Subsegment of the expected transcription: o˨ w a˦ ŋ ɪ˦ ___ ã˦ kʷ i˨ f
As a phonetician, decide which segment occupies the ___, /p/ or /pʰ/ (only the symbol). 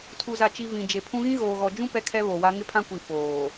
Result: pʰ